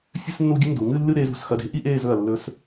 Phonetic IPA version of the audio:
fʲ ɨ˥ s nː u˥˧ ɡʲ ɨ˥ n d u˩˧ ŋ ɨ˥˧ lː ɨ˥˧ ɾ eː˧ z ṳ˩˧ s x ɐ˧ d e̤˥ ʔ i˥ ʔ eː˥˧ z ɵ˧˩ ɐ̯ lː ɵ˧ s

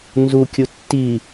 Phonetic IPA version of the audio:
n z u kʲ u tː i

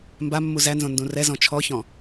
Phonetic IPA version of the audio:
m b a mː u z æ n z õ n d ũ r ɛ z ɔ̃ t͡ʃʰ ɔ ç ɔ̃

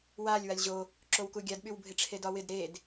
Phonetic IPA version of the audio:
w a lʲ w a lʲ ʑ o | ǁ o w k u ɡʲ a d ɓ y w bʱ ɪ ʈ͡ʂʰ e d ɒ w ɪ d ɾ e d

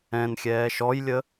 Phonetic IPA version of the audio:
ɛ̃ n xʲ ɛː ʃ ɔ j lʲ ə

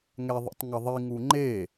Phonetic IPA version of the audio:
ŋ ɛ ðˤ ḛ tˤ ŋ ʌ ðˤ i ŋ u ŋ͡ǃ e

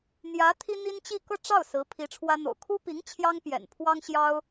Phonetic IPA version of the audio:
n̪ j ä˧˥ t̪ʰ i˥ n̪ i˥ n t͡ɕ i˥˧ k ɤ˥˧ ʈ͡ʂ ɑ˥˩ ʊ̯ s ɹ̩˧˥ pʰ i˧˥ ʈ͡ʂʰ w ä˥ n̪ o̰˨˩ ʊ̯ kʰ u˥ p i˧˥ ŋ t͡ɕʰ j ɑ˥ ŋ p j ɛ̰˨˩ n pʰ w ɑ˥ ŋ ɕ j ɑ˥ ʊ̯

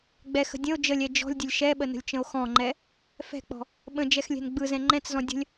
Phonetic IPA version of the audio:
ɡ͡b ɛ x ə̤ dʲ ə̃ o̯ d͡ʒ ə lʲ ɛ d͡ʒ ɔ̤ lʲ dʲ ə lʲ ʃ ɛ ɓ ə n ə̤ lʲ t͡ʃ ə̃ o̯ x ɔ̃ ŋ͡ǃ ɛ | f ɛ̤ k͡p ɔ̤ | ɓ ə̃ d͡ʒ ɛ x lʲ ɛ̤ n ɡ͡b ɯ z ɛ̃ ŋ͡ǃ ɛ̃ t͡s z ɔ̃ dʲ ə̤ lʲ

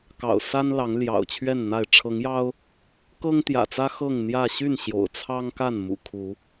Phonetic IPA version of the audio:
k ɑ̰˨˩ ʊ̯ s a˦ n l ɑ˨˦ ŋ l j ɑ̰˨˩ ʊ̯ t͡ɕʰ ɥ ɛ˥˨ n n̪ a˥˨ ɪ̯ ʈ͡ʂʰ ɤ˨˦ ŋ j ɑ˦ ʊ̯ | k ɤ˦ ŋ t̪ j ä̰˨˩ t͡s ä˦ x ɤ˥˨ ŋ n̪ j ä˥˨ ɕ y˥˨ n ɕ j o̰˨˩ ʊ̯ t͡sʰ ɑ˦ ŋ k a˥˨ n m ṵ˨˩ kʰ u˨˦

